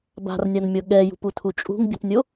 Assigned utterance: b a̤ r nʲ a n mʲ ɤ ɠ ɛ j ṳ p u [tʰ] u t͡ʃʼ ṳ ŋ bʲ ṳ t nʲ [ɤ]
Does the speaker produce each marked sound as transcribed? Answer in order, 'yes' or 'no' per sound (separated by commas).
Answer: yes, no